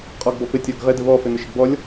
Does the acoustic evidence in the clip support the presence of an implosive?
no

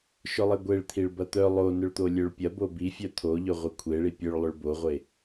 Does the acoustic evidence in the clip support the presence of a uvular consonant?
yes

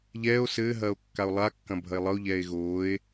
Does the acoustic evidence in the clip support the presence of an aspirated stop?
no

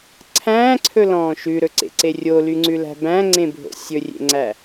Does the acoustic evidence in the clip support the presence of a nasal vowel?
yes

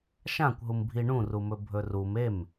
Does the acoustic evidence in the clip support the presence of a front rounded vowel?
no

